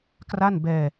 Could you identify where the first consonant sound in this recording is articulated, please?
velar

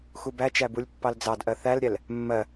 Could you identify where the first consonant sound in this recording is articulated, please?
velar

